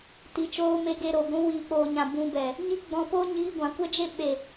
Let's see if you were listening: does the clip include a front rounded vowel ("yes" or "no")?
no